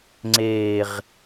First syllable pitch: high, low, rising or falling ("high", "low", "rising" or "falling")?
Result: low